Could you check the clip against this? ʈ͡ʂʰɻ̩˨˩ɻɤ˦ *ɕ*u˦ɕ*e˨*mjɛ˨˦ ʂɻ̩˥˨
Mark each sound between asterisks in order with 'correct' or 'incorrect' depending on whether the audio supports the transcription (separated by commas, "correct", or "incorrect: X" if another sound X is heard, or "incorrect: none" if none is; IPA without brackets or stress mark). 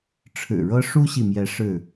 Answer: incorrect: ʂ, incorrect: i˨